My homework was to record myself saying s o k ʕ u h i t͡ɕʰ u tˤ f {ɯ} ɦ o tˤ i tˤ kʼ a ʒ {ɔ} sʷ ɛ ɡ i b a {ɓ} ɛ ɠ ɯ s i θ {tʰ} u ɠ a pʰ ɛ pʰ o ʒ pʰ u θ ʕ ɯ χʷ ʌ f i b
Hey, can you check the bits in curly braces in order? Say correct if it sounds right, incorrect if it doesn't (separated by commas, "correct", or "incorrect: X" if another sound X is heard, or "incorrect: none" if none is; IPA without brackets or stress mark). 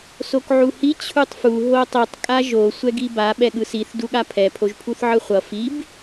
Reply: incorrect: u, incorrect: o, correct, incorrect: d